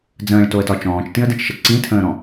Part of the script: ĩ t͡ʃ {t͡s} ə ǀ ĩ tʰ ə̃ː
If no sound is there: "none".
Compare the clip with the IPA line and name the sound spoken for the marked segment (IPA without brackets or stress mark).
ʃ